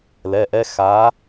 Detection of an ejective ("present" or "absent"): absent